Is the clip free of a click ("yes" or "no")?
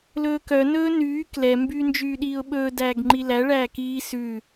no